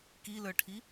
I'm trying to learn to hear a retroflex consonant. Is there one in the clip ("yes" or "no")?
yes